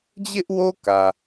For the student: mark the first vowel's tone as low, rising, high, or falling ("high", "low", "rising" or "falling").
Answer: high